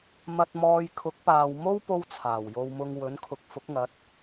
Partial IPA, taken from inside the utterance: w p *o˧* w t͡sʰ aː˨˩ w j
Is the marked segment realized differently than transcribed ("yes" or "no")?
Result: yes